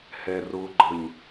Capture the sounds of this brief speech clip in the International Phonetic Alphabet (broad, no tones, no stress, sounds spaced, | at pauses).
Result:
h ɛ r ʊ ɡ͡ǃ ə ɲ